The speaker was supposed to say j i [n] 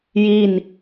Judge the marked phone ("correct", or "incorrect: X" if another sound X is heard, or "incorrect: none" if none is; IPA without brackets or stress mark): correct